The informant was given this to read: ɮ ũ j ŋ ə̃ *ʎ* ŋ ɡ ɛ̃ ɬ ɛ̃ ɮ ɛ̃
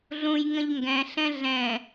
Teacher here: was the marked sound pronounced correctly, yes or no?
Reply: yes